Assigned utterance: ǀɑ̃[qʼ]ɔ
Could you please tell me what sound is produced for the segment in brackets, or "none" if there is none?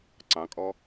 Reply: kʼ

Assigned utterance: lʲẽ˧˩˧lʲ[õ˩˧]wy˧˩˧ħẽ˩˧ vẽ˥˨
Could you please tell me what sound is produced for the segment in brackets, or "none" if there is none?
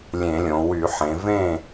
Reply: õ˩˧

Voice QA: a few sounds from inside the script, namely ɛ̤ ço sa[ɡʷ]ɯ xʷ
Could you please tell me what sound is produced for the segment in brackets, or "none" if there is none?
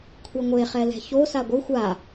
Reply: ɡʷ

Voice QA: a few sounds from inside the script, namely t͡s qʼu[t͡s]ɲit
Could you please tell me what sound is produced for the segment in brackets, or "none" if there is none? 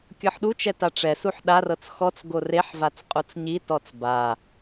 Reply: t͡s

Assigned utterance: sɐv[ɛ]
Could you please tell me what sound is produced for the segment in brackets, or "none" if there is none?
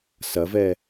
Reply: ɛ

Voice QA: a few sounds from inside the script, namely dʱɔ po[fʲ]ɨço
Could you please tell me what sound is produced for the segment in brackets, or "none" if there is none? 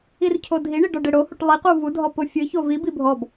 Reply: fʲ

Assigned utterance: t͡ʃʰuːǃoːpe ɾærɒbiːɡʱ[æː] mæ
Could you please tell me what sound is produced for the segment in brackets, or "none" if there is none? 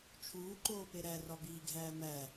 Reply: æː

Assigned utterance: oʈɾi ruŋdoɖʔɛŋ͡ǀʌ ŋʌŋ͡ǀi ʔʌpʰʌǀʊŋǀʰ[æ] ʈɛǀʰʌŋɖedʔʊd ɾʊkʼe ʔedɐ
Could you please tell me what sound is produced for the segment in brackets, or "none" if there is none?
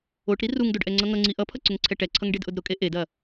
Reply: ɛ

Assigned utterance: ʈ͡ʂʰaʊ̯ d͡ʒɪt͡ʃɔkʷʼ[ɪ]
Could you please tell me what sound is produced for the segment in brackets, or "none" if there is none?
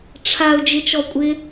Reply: ɪ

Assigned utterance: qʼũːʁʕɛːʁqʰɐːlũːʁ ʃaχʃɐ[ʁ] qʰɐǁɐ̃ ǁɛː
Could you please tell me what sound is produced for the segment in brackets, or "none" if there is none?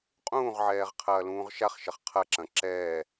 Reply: χ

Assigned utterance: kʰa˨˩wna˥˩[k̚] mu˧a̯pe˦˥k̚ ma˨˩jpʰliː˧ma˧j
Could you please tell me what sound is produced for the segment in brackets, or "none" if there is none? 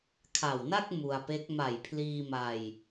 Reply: k̚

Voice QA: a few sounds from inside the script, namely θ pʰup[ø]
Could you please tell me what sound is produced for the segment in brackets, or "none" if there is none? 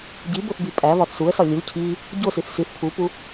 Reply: u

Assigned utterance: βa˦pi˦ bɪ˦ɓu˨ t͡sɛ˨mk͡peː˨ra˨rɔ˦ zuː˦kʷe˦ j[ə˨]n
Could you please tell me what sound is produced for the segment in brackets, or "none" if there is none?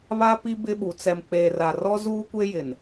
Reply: ɪ˨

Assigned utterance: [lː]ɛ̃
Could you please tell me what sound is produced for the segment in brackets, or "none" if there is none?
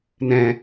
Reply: n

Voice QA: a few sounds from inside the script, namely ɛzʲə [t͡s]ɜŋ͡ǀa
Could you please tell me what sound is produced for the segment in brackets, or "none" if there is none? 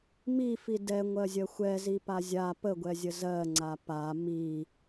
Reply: z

